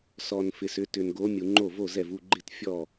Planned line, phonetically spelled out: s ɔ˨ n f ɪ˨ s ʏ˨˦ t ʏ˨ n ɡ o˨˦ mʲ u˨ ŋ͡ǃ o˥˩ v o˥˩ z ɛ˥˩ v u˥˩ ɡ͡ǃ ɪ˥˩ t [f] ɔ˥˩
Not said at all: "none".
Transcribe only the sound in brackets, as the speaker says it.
fʲ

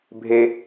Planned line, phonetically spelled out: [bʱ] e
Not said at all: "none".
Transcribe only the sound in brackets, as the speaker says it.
bʱ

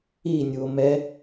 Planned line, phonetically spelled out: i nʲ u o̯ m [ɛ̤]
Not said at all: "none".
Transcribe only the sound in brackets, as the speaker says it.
ɛ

